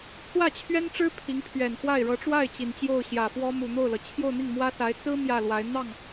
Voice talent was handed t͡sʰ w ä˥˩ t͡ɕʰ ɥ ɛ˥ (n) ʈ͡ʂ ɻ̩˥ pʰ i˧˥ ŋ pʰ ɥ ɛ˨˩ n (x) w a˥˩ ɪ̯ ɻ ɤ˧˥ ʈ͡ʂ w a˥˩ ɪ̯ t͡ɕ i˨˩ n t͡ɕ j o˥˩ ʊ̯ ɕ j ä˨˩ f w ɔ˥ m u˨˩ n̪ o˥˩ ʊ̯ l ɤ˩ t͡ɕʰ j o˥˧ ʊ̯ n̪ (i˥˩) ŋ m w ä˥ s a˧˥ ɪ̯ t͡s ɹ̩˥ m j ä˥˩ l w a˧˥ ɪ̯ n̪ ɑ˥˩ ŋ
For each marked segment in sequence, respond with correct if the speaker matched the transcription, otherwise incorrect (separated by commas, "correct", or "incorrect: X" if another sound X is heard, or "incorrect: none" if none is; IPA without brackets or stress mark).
correct, correct, correct